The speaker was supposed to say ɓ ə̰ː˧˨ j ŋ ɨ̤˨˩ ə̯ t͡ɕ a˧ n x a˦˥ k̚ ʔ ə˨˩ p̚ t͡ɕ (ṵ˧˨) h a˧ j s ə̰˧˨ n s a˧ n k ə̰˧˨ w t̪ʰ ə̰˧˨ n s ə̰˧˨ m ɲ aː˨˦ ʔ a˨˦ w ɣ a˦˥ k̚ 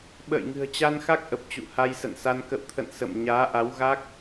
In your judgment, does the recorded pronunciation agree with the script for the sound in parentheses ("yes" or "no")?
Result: yes